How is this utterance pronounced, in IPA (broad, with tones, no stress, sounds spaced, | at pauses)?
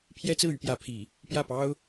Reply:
pʰ j ɛ˥ t͡s ɹ̩˥˩ y˥ p j ä˧˥ pʰ i˨˩˦ | p j ä˥˩ p ɑ˥ ʊ̯